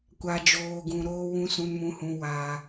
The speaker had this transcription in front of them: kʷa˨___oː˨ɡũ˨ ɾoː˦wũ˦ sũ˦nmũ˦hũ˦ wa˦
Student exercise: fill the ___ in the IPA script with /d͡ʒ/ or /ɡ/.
d͡ʒ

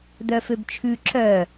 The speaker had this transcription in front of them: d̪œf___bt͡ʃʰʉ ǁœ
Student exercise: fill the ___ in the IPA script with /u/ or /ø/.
ø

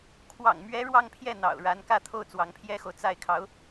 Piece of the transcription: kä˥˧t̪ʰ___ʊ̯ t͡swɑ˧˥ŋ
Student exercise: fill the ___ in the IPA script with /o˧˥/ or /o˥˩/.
o˥˩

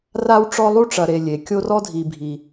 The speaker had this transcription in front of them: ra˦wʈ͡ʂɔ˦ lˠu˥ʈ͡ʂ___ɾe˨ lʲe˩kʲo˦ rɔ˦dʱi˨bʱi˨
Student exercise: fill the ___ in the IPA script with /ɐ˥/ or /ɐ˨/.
ɐ˨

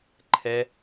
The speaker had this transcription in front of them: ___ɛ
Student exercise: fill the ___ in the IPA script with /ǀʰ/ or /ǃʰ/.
ǃʰ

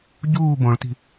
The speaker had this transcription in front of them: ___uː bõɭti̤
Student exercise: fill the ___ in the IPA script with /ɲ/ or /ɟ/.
ɟ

